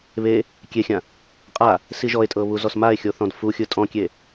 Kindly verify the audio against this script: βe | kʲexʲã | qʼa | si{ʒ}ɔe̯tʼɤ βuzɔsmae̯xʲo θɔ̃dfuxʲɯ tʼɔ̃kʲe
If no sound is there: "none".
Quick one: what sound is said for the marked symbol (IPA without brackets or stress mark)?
ʒ